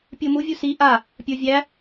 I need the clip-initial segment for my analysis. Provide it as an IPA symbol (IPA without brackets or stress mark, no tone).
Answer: pʲ